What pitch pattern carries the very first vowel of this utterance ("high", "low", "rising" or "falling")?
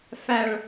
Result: low